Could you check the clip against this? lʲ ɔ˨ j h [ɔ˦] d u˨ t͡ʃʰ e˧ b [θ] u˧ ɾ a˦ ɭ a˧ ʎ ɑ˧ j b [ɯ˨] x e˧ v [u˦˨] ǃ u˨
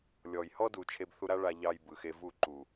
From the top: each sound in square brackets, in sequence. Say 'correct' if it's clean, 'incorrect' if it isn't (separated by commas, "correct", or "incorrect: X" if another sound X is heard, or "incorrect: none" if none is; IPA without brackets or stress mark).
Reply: correct, correct, correct, correct